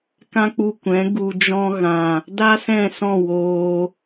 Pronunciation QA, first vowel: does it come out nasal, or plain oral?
nasal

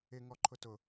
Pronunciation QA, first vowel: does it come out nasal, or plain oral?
oral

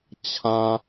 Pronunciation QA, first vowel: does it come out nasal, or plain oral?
nasal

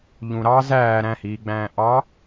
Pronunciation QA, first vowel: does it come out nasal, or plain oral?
nasal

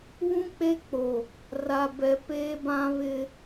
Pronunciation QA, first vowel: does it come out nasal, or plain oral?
nasal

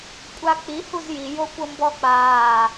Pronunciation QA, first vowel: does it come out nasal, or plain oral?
oral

